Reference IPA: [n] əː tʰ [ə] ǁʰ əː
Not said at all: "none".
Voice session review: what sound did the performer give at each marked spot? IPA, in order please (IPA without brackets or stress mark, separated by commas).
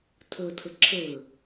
tʰ, ə